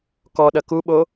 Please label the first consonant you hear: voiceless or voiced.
voiceless